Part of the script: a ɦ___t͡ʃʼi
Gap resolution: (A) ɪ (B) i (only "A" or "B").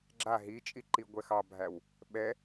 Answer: B